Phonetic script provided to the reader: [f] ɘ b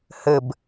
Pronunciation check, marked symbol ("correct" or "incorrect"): incorrect